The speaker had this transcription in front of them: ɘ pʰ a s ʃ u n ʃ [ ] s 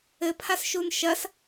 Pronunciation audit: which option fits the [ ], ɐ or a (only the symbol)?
ɐ